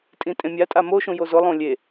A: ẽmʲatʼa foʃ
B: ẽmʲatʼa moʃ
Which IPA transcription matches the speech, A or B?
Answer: B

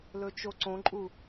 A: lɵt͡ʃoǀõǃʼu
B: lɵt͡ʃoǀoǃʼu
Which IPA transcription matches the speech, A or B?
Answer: A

